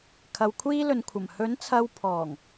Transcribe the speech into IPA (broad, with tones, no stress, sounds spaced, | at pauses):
kʰ ɐ˧ w kʷʰ iː˥ l ɵ˨ n kʷʰ ɐ˨˩ m h ɵ˨˥ n t͡sʰ ɐ˧ w pʰ ɔː˨˩ ŋ